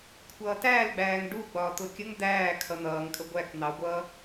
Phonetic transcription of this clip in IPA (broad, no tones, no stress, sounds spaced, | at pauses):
kʷʰ ʌː t æː l ɡ͡b æː ŋ ɖ u ɡ͡b ɒː t̪ ʊ kʲ ə ŋ d̪ æː kʰ ʌ n̪ ʌː ŋ kʼ ə ɡʷ æ k n̪ ɑ ɡʷ ʌː